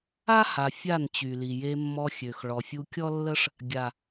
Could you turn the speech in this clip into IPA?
a˦ha˨ fʲa˦˨nt͡ɕy˨li˨ je˧mːɔ˧ xʲø˨x ɭɔ˨fʲu˧kʲɔ˦lːə˦ʂ | ɡʲa˨

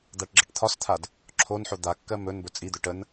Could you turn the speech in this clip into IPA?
d̪aʈɡ͡ǁəʈt̪ʰɒst̪ʰad | ǁʰonħo d̪akːɜ mɵn bɵt͡sʼid̪ɵ ʈən

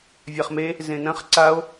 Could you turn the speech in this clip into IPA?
vʲaχme | zẽnɐ̃χ ǀao̯

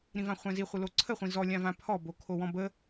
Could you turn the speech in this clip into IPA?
ɾĩvãχʷɛ̃zi χʷɯloǀʰə χʷĩzɔ lʲãvãpʰɔ bokʰowɔ̃bə

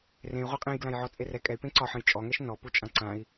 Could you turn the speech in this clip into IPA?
rẽy̯ ʁʷaqʼẽjɡlãjʕɔ t͡sʼerɛ kʼɛy̯pẽ ǀɒħə̃j t͡ʃʼɔŋɛʃ nɔpu t͡ʃʼãǀãi̯

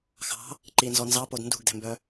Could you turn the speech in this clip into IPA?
xɑ̤ | ǃinzɔ nzɑpod ndṳɡdɛ̤mbœ

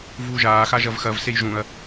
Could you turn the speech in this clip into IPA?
vuːʒaː xaʒɐvxɐv sejʒũɐ̯

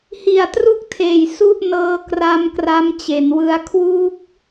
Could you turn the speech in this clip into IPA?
hi˨˩a̯tru˦˥k̚tʰeː˨˩j su˥˩ʔnɤː˦˥ kra˦˥mkra˦˥m t͡ɕe˩˦nwɯ˦˥a̯ kʰwuː˦˥k̚

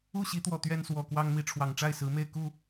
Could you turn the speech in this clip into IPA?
u˥˨ɕi˨˦t̪wɔ˨˩ t̪ɥɛ˦nswɔ˨˩kwɑ˦ŋmi˨˦ ʈ͡ʂʰwɑ˨˩ŋʈ͡ʂa˥˨ɪ̯ sɹ̩˨˦me˥˨ɪ̯ku˥˨

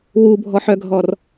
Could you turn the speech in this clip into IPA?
wubʱɔħœɡʱɔr

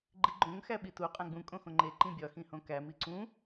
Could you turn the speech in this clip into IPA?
ɡ͡ǃiɡ͡ǃõŋ xæɓitu qʼæ̃ɡ͡bũ kʼõxõŋ͡ǃe ǃĩbʲɒ xĩhõkæ miǀũ

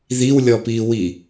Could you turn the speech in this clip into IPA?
ðiwlʲɔpiwi

